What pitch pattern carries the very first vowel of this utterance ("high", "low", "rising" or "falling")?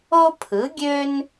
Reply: high